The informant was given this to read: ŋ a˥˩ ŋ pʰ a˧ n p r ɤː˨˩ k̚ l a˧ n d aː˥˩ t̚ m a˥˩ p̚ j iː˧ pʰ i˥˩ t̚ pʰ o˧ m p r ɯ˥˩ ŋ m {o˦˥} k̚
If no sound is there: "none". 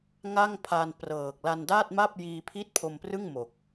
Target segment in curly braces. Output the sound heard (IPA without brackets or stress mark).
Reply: o˨˩